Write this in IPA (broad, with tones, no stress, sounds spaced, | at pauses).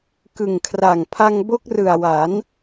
k ɯ˨˩ ŋ kʰ r a˨˩ ŋ pʰ a˧ ŋ b o˦˥ k̚ r ɯ˨˩ a̯ w a˩˦ n